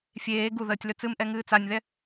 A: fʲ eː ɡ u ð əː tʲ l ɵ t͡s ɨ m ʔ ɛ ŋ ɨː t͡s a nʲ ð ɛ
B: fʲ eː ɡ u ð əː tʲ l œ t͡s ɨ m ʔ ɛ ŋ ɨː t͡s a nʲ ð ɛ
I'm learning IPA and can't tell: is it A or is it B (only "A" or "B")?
A